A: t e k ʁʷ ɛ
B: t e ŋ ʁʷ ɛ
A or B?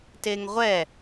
B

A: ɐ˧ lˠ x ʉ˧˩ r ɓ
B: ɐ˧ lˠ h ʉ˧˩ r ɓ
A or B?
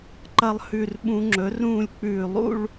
B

